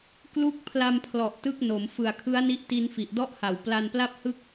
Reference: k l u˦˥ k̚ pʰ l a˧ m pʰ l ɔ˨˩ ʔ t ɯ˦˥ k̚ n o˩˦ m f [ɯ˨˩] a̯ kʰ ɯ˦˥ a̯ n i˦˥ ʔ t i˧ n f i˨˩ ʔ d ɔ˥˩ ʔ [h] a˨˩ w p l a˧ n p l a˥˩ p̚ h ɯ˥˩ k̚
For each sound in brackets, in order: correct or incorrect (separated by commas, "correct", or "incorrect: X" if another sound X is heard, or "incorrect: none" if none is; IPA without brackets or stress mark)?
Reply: correct, correct